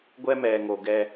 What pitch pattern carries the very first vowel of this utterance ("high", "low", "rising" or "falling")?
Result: high